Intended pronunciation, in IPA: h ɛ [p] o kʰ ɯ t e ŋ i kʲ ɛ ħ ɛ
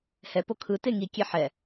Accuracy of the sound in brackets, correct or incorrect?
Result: correct